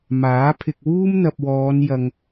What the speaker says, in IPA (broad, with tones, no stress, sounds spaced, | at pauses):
m aː˨˥ pʰ ɪ˧ k̚ w uː˥ m n̪ ɐ˨ p̚ w ɔː˨˧ n j ɐ˧ ŋ